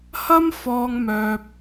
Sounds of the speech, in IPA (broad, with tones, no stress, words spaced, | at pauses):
hɐ˥mfɔː˧ŋmœː˧p̚